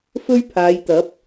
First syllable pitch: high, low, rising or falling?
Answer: high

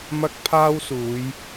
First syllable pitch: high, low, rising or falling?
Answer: high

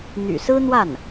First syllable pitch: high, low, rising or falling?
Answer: low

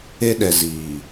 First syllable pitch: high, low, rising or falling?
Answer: high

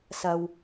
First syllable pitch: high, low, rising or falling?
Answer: low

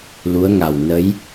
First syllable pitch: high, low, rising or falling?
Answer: rising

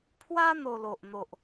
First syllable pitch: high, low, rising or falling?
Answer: high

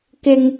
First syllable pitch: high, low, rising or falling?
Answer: high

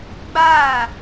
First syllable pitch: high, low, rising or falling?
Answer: falling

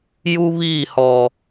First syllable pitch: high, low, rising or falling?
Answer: high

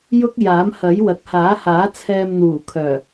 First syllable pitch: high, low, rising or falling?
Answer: high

